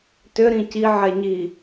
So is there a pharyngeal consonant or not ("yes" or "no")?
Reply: yes